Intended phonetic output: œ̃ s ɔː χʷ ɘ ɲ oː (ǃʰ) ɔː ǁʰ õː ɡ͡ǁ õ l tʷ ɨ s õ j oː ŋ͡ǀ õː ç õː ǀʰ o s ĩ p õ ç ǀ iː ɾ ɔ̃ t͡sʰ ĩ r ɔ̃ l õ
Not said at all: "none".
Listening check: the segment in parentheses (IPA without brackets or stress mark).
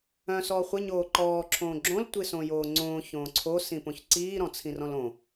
ǃ